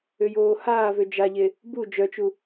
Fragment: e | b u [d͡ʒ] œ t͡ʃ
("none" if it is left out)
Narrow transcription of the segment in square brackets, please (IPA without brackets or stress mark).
d͡ʒ